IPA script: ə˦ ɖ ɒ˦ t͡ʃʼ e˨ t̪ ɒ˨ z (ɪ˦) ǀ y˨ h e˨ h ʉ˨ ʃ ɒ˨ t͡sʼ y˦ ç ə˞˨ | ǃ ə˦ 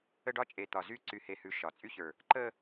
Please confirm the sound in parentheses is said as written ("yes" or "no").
no